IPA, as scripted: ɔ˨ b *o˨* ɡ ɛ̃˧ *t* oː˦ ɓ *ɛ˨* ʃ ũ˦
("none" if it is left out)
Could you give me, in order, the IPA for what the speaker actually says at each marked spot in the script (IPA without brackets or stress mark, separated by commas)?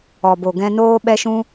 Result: o˨, n, ɛ˦